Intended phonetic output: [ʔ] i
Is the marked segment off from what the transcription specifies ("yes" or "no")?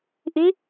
no